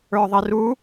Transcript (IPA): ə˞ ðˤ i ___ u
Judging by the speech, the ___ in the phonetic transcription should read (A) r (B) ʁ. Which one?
A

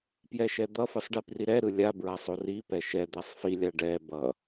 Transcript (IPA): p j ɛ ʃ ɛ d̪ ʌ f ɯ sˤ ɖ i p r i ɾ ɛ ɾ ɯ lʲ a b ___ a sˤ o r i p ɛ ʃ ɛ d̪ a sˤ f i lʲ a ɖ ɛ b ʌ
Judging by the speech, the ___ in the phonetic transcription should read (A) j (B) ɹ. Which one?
B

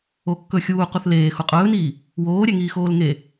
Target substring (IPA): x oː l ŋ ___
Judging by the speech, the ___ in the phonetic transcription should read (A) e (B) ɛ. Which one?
A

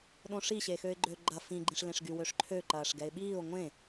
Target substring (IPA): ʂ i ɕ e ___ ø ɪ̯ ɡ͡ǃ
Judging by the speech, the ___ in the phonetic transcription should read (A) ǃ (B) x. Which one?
B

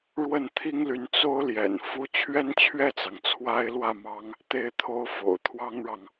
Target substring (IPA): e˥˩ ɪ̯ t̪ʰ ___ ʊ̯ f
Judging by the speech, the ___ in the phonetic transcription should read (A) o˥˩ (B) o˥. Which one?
B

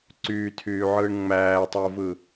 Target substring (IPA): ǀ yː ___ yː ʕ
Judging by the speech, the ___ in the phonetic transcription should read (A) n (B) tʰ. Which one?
B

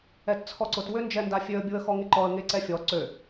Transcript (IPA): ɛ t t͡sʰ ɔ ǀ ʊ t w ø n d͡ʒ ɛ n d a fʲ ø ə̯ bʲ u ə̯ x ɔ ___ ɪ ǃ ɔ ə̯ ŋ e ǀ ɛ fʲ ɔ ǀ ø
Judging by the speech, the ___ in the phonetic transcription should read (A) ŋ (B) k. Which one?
A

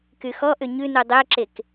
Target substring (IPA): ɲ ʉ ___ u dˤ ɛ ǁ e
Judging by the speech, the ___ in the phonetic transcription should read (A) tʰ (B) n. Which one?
B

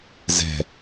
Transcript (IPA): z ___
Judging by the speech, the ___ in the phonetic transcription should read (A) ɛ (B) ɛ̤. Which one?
B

